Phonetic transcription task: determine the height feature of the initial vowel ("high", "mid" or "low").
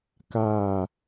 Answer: low